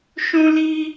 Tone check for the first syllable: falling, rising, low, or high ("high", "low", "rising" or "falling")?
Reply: high